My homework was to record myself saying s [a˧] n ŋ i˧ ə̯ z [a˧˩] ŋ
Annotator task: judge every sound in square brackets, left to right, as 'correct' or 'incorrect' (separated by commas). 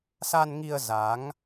correct, incorrect